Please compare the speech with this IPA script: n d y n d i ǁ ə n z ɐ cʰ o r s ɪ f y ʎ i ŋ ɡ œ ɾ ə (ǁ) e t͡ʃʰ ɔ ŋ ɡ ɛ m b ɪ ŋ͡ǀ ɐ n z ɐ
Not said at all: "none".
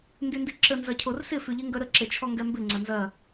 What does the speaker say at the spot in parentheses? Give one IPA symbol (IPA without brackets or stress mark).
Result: ǁ